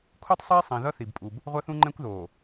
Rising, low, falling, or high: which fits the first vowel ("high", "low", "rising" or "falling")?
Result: high